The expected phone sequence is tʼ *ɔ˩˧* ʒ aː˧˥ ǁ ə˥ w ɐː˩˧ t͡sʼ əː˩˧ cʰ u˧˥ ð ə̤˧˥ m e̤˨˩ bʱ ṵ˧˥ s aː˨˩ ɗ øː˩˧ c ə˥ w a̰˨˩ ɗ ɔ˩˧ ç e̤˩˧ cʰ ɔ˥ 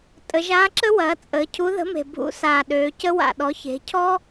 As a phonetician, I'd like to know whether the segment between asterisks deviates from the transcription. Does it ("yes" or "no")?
yes